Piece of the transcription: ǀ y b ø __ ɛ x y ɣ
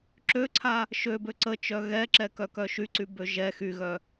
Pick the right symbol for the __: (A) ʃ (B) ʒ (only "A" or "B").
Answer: B